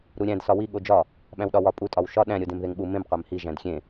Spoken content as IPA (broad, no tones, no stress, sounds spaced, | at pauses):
ɾ u ɾʲ æ̃ d s ɒ w i ɠ o d͡ʒ ɒ | ɓ æ̃ w ɗ ɒ w ɒ pʼ u tʼ ɒ w ʃ ɒ ɗ æ̃ ɾʲ o d ẽ m ð e ŋ ɓ u m ẽ m qʷ æ m h i ʒ æ̃ d xʲ ẽ